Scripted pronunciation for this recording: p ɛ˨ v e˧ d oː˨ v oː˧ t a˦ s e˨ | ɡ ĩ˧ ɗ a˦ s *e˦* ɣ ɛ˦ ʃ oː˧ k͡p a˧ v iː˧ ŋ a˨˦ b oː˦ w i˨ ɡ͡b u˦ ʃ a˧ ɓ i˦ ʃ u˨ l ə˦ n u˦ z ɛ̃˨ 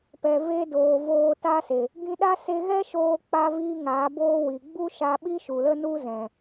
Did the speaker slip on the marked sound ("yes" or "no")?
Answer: yes